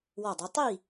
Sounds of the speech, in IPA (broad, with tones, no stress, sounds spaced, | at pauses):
w ɔ˥˨ dˤ i˨˥ tˤ i˥˨